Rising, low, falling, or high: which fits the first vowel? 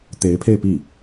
rising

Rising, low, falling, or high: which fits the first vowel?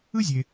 high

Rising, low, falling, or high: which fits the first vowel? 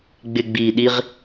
low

